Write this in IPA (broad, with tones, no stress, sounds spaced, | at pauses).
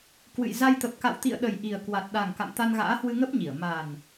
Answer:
k w ɨ̰˧˨ j z a˧ j t̪ ə˨˩ p̚ k a̰˧˨ w t̪ ḭ˧˨ ə̯ ɗ ə˨˩ j ʔ i˨˩ ə̯ k w a˨˩ t̚ ɗ a˨˩ ŋ k a̰˧˨ m t̪ a˧ n ɣ a̰ː˧˥ h w ɨ˧ ŋ ə˦˥ p̚ ɲ i˧˩ ə̯ m a˨˩ n